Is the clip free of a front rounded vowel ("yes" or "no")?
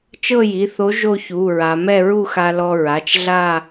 yes